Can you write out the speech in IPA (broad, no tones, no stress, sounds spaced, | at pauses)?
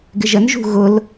ɡ ɪ ʒ ə n ʒ ṳ ɣ ʊ l